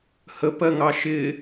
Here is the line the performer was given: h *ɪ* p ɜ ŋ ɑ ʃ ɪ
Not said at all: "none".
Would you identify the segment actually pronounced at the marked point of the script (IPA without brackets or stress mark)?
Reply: ə